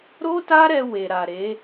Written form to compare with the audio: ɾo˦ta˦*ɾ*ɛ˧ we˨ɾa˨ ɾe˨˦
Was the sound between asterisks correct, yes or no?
yes